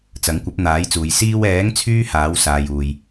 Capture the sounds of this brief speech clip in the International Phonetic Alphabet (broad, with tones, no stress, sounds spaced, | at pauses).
t͡s ɐ˨˥ ŋ kʷ ɐ˨˥ p̚ n̪ aː˨˥ j t͡s uː˨ j s iː˧ w ɛː˨˥ ŋ t͡sʰ yː˥ h aː˨˥ w s aː˨ j uː˨ j